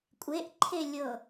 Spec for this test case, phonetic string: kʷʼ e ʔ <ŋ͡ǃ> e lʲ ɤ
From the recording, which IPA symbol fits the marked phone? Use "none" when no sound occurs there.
ǃʰ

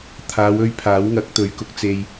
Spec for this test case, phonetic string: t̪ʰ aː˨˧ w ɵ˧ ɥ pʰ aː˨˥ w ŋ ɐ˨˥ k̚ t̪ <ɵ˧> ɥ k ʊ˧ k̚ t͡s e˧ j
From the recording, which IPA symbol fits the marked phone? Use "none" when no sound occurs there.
ɵ˨˧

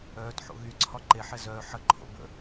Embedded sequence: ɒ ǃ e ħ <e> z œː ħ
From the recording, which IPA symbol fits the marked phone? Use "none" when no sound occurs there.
ɛ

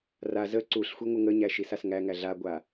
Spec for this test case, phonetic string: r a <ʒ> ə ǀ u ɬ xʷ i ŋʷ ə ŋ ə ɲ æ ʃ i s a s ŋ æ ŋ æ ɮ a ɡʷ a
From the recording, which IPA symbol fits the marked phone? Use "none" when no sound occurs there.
z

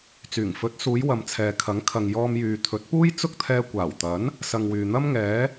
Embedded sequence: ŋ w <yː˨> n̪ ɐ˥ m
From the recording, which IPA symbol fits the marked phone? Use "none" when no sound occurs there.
yː˨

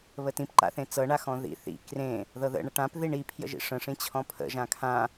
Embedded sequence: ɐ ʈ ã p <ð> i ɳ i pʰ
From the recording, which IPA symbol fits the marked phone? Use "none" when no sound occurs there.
ð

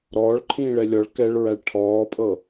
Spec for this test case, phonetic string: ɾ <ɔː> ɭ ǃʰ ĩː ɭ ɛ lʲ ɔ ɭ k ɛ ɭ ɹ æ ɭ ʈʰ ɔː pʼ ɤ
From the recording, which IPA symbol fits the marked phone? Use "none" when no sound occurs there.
ɔː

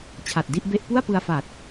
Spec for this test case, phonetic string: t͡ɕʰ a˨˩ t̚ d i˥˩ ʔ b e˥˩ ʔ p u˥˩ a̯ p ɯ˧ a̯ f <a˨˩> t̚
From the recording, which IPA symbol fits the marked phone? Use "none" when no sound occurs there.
a˨˩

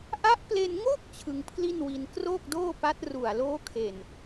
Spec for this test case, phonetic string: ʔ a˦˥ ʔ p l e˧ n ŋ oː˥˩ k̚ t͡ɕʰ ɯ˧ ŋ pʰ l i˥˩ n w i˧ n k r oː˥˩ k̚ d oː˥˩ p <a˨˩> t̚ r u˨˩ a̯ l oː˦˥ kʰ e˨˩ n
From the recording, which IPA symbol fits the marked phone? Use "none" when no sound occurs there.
a˦˥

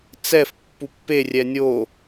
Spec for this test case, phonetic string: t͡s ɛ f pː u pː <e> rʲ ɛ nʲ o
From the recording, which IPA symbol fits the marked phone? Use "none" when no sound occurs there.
e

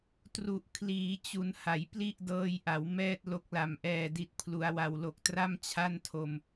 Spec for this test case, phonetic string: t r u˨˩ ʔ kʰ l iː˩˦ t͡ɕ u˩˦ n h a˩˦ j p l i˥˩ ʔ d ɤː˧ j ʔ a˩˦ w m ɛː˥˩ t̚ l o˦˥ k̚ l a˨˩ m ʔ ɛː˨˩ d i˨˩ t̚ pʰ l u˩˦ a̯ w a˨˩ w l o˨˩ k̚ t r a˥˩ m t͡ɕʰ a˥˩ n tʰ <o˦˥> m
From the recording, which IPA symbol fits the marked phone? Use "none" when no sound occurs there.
o˧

